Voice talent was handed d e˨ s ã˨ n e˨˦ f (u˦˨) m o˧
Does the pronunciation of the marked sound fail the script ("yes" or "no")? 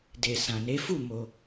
no